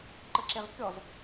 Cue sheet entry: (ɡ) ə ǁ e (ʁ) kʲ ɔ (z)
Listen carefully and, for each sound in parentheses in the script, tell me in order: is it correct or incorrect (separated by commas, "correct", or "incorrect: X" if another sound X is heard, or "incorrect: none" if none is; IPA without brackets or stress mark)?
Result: incorrect: ǃ, correct, correct